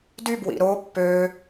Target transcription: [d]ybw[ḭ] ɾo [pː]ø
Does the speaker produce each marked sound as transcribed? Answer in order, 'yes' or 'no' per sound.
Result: yes, yes, yes

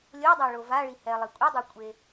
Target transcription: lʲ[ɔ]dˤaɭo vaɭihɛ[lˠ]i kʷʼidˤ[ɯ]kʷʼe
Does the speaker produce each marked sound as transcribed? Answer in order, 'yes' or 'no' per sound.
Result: no, yes, yes

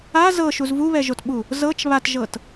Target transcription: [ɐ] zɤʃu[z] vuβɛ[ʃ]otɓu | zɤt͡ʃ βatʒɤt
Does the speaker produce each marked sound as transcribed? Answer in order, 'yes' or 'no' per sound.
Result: no, yes, no

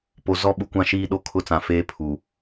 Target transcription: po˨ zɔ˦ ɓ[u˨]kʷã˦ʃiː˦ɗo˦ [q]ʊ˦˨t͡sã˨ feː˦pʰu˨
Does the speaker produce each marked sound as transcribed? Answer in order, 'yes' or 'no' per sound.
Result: yes, no

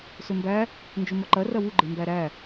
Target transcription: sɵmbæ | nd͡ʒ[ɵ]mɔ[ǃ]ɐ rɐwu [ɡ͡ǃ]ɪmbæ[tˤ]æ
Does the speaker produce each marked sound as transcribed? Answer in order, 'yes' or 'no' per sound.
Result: yes, yes, yes, no

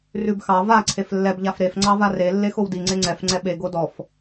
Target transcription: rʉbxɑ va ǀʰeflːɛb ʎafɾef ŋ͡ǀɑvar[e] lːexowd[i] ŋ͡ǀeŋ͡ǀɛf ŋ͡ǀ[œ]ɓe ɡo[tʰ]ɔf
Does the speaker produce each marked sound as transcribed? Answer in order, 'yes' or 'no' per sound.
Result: yes, yes, no, no

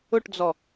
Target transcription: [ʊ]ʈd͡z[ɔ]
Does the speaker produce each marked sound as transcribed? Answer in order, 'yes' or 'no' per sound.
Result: yes, yes

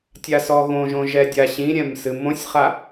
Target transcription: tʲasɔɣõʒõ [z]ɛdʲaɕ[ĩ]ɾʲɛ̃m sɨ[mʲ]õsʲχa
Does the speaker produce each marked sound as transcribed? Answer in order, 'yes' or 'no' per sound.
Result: no, yes, no

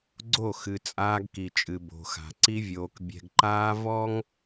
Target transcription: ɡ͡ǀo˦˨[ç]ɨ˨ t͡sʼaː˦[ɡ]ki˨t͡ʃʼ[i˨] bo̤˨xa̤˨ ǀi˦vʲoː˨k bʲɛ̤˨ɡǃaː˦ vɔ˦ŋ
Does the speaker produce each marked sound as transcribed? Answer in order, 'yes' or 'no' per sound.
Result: no, yes, no

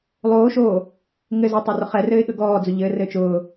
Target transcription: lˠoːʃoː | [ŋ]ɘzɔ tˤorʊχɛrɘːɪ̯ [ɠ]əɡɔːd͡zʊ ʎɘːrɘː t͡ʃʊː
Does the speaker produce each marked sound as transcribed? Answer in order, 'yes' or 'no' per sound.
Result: yes, yes

